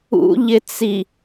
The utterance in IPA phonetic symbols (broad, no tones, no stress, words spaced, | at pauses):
ṵʎɪt͡si